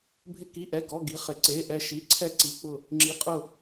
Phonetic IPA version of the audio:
bʱ ɪ˥˨ k i˧˥˧ ʔ ɛ˧˥˧ ɡ ɔ˧˥˧ ɡ i˧˥˧ χ ɪ˧˥˧ ǀ e˧˥˧ ʔ ɛ˥˨ ʃ i˧˥˧ ǀʰ ɛ˥˨ ǀ i˧˥˧ k͡p ʊ˥˨ | ŋ͡ǁ i˧˥˧ qʼ ʊ˥˨

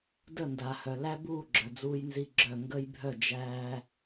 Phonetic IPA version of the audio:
d ə˦˨ n d a˨ h œ˨ l æ˦ b uː˦˨ ɡ͡ǁ œ˨ d͡z uː˦ j n z i˦ ɡ͡ǁ œ˦˨ ŋ ɡ əː˦ j bʱ œ˦˨ d͡ʒ æː˦

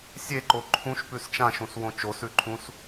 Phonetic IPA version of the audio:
sʲ e ǃ o ǃʰ ũ ʃ p ʉ s t͡ʃ ã ʃ ũ s w õ t͡ʃ o s ʉ ǃʰ ũ s

